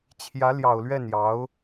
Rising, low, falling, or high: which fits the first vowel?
rising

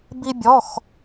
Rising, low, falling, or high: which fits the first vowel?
high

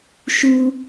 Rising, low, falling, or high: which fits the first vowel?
high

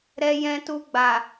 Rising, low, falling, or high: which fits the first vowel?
low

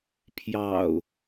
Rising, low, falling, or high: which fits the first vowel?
low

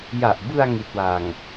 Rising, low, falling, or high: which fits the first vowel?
low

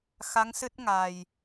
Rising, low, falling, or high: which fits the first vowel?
rising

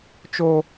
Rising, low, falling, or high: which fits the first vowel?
high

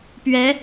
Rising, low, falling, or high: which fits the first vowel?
rising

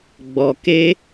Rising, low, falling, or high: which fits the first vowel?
low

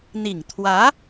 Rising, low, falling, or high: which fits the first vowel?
low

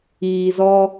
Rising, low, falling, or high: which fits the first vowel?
low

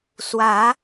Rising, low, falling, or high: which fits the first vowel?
rising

